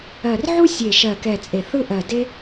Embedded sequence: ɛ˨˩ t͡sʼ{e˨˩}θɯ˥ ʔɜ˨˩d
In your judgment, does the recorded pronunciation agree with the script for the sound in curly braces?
yes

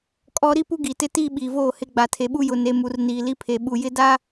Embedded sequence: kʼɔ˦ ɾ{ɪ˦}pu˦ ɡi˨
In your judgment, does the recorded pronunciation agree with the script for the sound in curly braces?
no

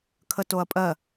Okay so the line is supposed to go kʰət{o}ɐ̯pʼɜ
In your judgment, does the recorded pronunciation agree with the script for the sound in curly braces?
yes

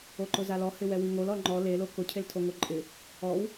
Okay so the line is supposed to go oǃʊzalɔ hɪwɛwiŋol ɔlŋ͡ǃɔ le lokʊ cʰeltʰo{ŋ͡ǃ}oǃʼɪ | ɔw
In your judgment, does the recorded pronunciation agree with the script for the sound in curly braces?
no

